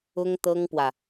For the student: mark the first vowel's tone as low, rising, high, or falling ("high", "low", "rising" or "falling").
high